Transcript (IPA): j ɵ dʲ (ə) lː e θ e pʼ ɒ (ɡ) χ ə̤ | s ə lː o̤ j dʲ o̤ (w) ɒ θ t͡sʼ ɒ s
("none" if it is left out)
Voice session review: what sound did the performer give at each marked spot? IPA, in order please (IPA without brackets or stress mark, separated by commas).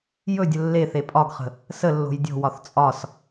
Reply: ə, ɡ, w